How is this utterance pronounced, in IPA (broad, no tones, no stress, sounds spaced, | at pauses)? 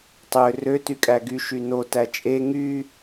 tˤ ø r ø t y kʼ æ ɡ y ʃ y n o t æ t͡ʃʼ e ŋ y